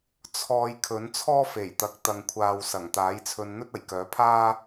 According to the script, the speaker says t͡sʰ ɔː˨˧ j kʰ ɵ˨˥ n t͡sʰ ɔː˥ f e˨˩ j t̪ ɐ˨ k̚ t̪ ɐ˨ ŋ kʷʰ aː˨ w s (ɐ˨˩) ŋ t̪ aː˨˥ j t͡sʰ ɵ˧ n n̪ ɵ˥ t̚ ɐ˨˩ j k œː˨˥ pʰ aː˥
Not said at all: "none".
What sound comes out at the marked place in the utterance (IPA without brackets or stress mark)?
ɐ˨˩